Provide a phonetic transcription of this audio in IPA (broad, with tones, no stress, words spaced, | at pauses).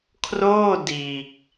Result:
kʰroː˥˩ diː˨˩k̚